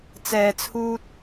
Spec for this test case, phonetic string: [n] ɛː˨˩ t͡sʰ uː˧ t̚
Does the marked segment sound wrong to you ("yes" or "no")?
yes